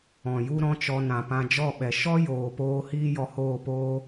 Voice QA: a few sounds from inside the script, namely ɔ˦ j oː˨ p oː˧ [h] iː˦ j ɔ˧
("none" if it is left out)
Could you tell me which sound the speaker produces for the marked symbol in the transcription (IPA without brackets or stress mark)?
h